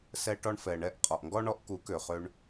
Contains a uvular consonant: yes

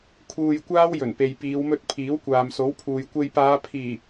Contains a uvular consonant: no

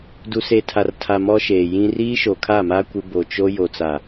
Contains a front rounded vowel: no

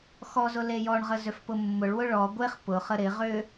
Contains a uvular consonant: yes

